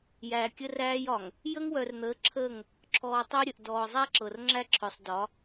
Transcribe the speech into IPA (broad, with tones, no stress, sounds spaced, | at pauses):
j æː˨ kʲ ə˦ r æː˦ j ɒ˨ ŋ | j ə˦ ŋ w œ˨ r n̪ əː˨˦ ǁʰ əː˦˨ ŋ | ǁʰ ɔː˨ tˤ əː˦ ɾʲ ə˨ ʔ d ɔː˨ zˤ æ˦ ǁ ɤ˨ r ŋ͡ǁ æ˦ ǁʰ œ˨ sˤ d ɒ˨˦